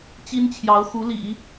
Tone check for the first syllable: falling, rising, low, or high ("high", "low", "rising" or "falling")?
high